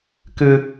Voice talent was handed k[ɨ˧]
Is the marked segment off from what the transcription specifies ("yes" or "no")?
no